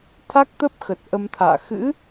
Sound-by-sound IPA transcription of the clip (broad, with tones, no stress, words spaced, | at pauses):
t̪ʰa˦˥k̚t̪ə˦˥p̚xə˨˩t̚ ʔə˧mt̪ʰa̰ː˧˨ xɨ̰˧˥